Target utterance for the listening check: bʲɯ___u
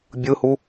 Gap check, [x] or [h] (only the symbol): h